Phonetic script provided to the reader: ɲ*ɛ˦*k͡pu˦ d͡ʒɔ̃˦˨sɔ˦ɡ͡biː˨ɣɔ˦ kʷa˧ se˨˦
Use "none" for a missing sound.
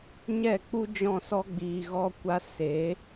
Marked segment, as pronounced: ɛ˦˨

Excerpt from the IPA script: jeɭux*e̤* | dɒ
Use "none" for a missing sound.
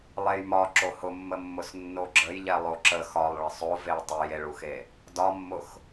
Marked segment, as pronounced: e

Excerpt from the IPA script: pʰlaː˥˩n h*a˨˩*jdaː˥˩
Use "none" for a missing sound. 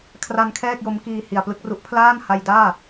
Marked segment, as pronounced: a˧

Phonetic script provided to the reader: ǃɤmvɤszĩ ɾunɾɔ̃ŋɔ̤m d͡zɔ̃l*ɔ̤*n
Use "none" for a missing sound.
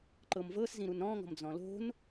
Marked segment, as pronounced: o̤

